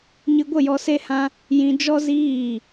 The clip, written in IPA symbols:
ɲ ɨ˧ ɡʷ ə˦˨ j ɔ˧ s e˦ h ã˦ | j ĩ˧ d͡ʒ ɔ˦ z iː˦˨

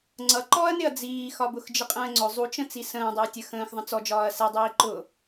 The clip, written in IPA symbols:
ŋ͡ǀ ʌ ǃ ɔ ɐ̯ n ɪ ɐ̯ d͡z iː x ɒ b ʊ x d͡ʒ ɪ qʼ ə̃ː ŋ͡ǀ ʊ zˤ u t͡ʃ ə̃ t͡s i s ə̃ː dˤ ɪ ɐ̯ tʲ ə x ə̃ː x ðˤ ə̃ t͡s ɔ d͡ʒ ɒː ɐ̯ s ɛ dˤ iː ǃ ʊ

